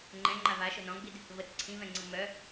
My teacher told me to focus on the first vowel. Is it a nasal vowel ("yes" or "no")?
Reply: yes